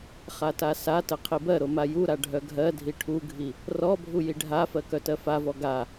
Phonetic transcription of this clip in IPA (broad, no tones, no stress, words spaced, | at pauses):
χatasatə qʰibɜɾo majuɾa ɖʱœɡʱɜdʱi ʈʰuɡʱi | rɔbʱu jiɖʱafɜ kœtɜfavɔ ɡa